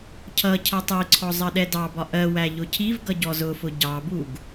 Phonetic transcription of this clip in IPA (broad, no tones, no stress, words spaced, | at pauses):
cʰʌ cʰɜtˤiǀʰɔ zˤɜɗɛdɑbɒ ʔɜwæ ʎʊcʰivɡʌ ɟɔzʊfʊ ɟɑbuɡ